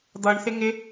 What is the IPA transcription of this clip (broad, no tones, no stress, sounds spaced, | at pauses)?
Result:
d̪ ʌ ɳ θ ɪ ŋ ɪ